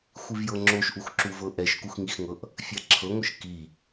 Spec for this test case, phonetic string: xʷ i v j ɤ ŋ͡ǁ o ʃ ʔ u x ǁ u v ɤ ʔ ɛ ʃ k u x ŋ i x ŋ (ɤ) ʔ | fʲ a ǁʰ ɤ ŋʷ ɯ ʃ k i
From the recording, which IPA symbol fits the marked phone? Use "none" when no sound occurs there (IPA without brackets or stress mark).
ɤ